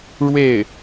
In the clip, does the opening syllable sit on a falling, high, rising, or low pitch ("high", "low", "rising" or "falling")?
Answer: falling